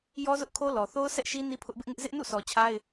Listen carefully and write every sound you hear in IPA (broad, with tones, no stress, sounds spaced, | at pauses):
j ɔ˦ z ʊ˦ ʔ kʰ o˦ l ɔ˨ θ o˦ ʊ̯ sʰ ɛ˦ ʔ ʃ i˦ n i˦ pʰ ʊ˦ ʔ b ɪ˦ ʔ ŋ ɪ˦ ʔ z ɪ˦ ʔ n ṵ˦˨ sʰ ɔ˨ t͡ɕʰ a˦ ɪ̯